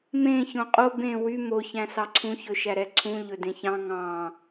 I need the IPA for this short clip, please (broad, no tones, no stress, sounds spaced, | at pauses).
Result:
m ẽ ç õ qʼ o b ẽ w y m o ç æ̃ s ɑ ǀʰ ũ ç ɵ ʃ æ ɾ ɛ ǀʰ ũ ʎ ɵ d ẽ ç ɑ̃ ŋ ɑ̃